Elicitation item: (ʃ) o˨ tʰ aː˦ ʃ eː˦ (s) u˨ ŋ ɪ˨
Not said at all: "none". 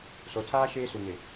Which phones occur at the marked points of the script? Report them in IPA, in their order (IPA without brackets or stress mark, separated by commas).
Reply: s, s